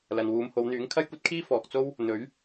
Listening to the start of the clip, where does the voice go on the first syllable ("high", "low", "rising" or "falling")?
low